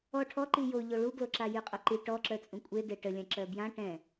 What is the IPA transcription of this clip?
ɔ ʈʰ ɔ ǃ i j o ʎ o ɭ u ɡ l o ǁ a j y qʼ o ǃ i ʈ ɔ ǁ œ t͡sʼ ũ kʷʼ e d e ʈ ə lʲ ã ǁ œ b j ã ʈ ɛ̃

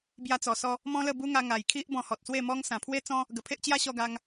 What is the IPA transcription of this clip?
b j a˧ t͡s ɔ˨˩ s ɔ˧ | m ɔ̃˦ l ə˥˧ b u˦ ŋ a˧ ŋ a˨˩ j kʰ i˦ ʔ b ɔ̃˧ h ɔ˨ t̚ s w e˥˧ m ɔ˦ ŋ s ã˨˩ pʰ w e˦ t͡s ɔ̃˦ | ɡ ə˨˩ pʰ e˦ ʔ t͡ɕ j a˦ ɕ ɔ˧ ɡ a˧ ŋ

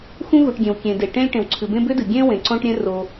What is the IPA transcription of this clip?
x ũ˥ ɣ u˩ ʈ ɡʲ ẽ˩ w kʲ ẽ˩ d e˩ ʈ ẽ˥ lʲ ʈ ẽ˩ w ǀʰ ɨ˩ b ẽ˥ b ʏ˥ d ɨ˩ ɡʲ ẽ˥ w ẽ˩ ǀ õ˥ ʈ ɾʲ ẽ˥ r o˩

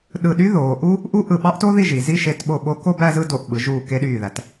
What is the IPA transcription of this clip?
ɗ ɯ˧˩ ɗ y˥ ð oː˩˧ ʔ u˥ | ʔ u˥ ʔ ɯ˧˩ ɓ ɑ˥ ʔ t o˥ ð i˥˧ ʒ i˩˧ z i˥˧ ʃ e˧ t ɓ o˧˩ ɓ o˧ k o˥˧ b æ˥˧ z ɯ˥˧ d o˧˩ ʔ ɓ ɯ˩˧ ʒ uː˧˩ k e˧ ɗ yː˧˩ ð æ˩˧ t

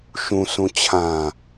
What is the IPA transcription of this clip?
ʃ ũ s ũ t͡ɕʰ ã

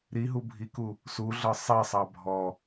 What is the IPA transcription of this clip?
ɾ i ɦ u bʱ i k u | s u ɮ ɤ sˤ i sˤ ɑ bʱ ɔ

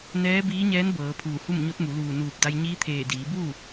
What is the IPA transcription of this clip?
n ɛː˧˥ b iː˧˥ ɲ ɛː˧˥ n b ɤː˩˧ pʰ uː˧˩ h u˥˨ m ɲ o˧˥ t̚ m u˩˧ l uː˧˩ n uː˧˩ p̚ d a˧ j ɲ iː˧˥ t̪ʰ eː˧˩ d iː˩˧ b uː˥˨

